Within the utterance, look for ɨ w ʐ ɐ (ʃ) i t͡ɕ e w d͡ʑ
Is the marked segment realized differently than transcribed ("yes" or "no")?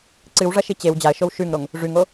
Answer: no